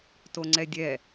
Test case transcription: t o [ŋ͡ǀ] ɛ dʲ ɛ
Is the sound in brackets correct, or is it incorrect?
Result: correct